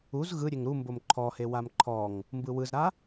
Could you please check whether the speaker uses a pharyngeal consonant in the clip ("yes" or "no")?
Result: no